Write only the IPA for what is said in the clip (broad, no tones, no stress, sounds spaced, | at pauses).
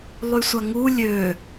lˠ y sʷ a ŋ u lʲ ø